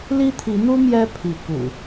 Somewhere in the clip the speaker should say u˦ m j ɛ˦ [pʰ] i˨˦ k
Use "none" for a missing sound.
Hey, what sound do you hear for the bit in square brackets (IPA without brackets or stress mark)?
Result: pʰ